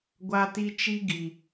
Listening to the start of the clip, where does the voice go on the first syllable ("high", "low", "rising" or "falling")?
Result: high